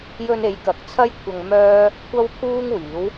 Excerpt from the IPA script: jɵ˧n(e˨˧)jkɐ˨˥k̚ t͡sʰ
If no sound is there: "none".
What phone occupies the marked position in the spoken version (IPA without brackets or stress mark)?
e˨˧